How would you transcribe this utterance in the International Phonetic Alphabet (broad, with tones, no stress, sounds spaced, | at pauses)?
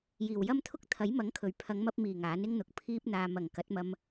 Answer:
j iː˨˩ w j ɐ˥ m t̪ʰ ʊ˥ k̚ t̪ʰ ɐ˨˥ j m ɐ˨˥ ŋ kʰ ɵ˨˩ ɥ pʰ ɐ˨˧ ŋ m ɐ˧ p̚ m iː˨˩ ŋ aː˨˥ n ɪ˥ ŋ n̪ ʊ˨ k̚ pʰ iː˧ p̚ n̪ aː˨ m ɐ˨˩ ŋ k ɐ˨˥ t̚ m ɐ˧ m